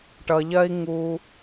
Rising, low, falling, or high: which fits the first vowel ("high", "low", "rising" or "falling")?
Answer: low